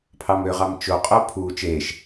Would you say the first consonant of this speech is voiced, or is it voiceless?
voiceless